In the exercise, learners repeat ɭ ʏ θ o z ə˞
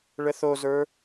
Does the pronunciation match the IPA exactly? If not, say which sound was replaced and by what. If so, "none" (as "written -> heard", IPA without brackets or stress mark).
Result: ʏ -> ə